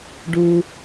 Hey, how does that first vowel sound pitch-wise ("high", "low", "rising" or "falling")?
low